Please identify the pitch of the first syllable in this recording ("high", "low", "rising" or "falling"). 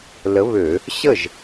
rising